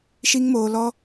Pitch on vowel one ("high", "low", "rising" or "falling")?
high